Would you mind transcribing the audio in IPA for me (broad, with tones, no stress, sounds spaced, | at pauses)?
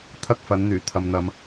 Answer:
t̪ʰ ɐ˥ k̚ f ɐ˨˥ n n̪ yː˨˩ t̪ʰ ɐ˨ m n̪ ɐ˨˧ m